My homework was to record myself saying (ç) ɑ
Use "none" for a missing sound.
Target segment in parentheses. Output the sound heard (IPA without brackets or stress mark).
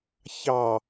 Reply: ç